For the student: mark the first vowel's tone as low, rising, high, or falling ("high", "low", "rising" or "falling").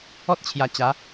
high